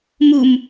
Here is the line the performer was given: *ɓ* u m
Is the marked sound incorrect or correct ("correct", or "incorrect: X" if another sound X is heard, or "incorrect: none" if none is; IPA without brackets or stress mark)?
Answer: incorrect: m